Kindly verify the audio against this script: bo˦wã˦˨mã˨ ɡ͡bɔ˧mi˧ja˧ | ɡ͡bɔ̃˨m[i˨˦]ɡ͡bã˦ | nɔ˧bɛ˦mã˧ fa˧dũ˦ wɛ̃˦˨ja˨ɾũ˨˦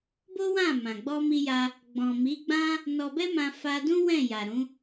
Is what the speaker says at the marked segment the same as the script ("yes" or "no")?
yes